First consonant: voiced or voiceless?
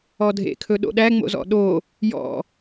voiced